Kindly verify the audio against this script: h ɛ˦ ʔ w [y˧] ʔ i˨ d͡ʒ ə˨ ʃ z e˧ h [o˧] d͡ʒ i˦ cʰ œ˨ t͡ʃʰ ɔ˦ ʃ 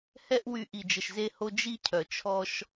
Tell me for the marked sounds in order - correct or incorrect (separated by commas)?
correct, correct